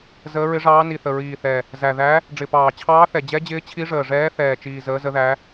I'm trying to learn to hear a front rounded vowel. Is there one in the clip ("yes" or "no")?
no